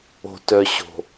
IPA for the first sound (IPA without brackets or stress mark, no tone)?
o̤